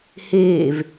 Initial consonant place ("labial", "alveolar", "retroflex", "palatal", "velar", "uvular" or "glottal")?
glottal